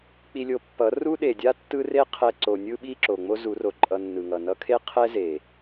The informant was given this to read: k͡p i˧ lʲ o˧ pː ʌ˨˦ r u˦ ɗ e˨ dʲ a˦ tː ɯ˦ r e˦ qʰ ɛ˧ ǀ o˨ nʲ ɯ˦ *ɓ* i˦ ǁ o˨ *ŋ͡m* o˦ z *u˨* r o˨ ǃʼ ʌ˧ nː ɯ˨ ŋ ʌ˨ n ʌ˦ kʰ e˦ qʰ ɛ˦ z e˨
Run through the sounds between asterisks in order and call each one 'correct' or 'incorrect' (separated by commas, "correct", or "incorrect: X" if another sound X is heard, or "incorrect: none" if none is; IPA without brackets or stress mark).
correct, correct, incorrect: u˨˦